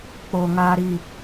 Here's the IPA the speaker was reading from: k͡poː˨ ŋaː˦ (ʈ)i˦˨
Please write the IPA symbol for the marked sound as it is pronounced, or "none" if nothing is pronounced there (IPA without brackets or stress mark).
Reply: ɾ